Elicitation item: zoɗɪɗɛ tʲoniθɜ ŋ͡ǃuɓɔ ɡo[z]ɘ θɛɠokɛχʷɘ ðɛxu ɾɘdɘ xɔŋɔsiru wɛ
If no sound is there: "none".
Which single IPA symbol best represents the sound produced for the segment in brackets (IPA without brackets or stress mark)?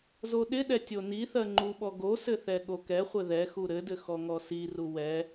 s